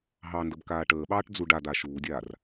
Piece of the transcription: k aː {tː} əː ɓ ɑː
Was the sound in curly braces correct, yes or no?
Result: no